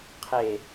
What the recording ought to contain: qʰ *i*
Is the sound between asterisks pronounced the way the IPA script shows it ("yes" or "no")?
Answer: no